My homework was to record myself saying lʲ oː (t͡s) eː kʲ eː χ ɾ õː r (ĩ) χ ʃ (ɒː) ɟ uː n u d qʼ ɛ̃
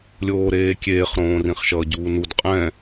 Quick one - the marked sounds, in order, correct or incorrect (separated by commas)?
incorrect, correct, incorrect